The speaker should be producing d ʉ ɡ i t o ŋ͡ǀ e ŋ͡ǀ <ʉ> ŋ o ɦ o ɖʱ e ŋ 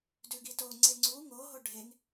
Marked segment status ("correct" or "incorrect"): incorrect